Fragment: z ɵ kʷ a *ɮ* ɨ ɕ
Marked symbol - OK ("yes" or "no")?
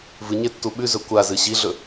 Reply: no